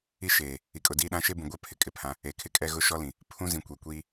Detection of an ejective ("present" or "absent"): present